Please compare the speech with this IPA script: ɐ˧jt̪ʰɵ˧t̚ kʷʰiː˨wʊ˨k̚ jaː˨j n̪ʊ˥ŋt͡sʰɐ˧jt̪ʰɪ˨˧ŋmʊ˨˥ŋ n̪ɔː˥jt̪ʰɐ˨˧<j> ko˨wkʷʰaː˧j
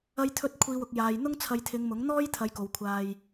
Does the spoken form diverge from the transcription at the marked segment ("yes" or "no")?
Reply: no